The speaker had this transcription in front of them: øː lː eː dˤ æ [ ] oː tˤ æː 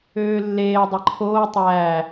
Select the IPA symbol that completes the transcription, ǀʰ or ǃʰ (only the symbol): ǃʰ